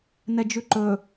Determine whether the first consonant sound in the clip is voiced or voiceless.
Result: voiced